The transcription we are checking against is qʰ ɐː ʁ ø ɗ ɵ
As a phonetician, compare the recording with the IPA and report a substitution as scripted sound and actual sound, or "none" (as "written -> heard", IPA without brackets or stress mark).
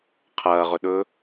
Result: ø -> ɵ